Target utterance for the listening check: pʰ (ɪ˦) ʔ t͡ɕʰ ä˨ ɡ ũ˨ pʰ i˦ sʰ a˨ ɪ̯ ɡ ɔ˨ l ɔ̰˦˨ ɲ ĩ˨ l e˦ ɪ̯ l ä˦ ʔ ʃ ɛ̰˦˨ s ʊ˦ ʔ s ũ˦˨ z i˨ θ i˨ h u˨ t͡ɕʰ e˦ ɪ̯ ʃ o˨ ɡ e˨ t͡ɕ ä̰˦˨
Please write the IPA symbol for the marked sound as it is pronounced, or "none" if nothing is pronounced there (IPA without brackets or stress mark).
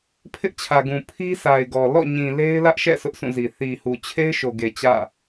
ɪ˦